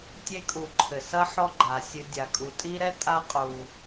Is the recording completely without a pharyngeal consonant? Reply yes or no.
no